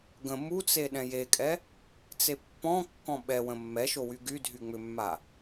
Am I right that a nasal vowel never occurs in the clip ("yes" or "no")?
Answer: no